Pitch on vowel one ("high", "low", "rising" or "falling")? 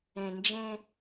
low